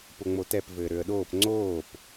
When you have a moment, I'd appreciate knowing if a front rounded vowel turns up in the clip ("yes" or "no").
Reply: yes